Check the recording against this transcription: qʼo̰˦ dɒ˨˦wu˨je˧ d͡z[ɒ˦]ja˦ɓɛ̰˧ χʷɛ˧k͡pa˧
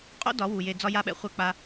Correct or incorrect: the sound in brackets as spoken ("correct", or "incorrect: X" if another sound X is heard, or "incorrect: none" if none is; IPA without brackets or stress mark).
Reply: correct